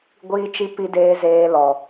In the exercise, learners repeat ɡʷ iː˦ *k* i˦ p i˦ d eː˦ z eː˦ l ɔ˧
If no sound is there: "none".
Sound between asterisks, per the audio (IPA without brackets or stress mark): t͡ʃ